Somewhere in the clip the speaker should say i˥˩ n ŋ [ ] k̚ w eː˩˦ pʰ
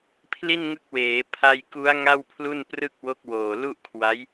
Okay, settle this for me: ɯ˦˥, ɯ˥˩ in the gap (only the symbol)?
ɯ˦˥